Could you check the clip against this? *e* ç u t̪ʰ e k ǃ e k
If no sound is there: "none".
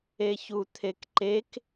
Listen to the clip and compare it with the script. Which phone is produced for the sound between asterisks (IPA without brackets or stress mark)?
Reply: e